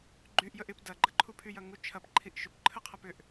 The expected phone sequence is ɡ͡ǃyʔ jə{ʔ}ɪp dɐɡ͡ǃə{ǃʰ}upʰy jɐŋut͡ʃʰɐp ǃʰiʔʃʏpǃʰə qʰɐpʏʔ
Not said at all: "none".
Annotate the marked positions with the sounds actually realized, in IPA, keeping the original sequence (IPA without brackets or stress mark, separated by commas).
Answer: ʔ, ǃʰ